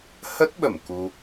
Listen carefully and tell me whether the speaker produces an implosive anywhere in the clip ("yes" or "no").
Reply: yes